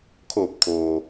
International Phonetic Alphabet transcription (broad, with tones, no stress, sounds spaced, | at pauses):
kʰ oː˧˩ p̚ kʰ oː˩